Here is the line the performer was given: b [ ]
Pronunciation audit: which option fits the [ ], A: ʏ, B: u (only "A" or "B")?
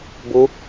B